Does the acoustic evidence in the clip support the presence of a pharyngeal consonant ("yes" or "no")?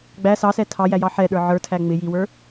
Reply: yes